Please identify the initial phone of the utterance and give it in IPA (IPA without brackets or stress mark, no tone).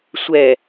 sʷ